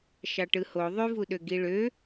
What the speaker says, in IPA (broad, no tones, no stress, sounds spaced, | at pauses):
ʃ ɑ ʈ ɯ h o ðˤ y v u ɗ ø ɡ i ɭ ø